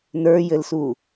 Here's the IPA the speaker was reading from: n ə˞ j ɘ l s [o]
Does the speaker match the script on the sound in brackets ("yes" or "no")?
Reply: no